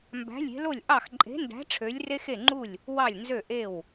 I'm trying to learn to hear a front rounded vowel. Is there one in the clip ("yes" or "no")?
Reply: yes